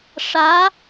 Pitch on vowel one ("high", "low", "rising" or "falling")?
rising